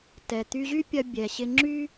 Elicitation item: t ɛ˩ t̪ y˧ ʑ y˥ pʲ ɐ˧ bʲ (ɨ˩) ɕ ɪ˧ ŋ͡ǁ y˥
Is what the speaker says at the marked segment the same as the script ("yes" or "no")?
no